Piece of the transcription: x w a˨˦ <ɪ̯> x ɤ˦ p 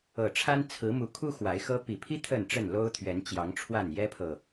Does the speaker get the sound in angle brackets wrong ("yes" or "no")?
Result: no